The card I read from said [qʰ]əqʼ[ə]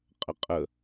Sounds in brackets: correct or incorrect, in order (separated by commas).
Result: incorrect, correct